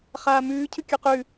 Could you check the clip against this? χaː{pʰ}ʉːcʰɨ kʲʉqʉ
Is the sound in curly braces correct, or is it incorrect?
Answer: incorrect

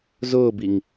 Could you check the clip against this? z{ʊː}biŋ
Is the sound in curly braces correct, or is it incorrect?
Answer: correct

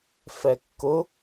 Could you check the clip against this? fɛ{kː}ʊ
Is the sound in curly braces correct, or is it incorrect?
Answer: correct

